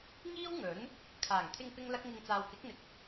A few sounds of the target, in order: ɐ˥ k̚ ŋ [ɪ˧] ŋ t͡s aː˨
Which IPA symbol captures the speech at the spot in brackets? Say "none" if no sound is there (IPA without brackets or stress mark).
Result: ɪ˧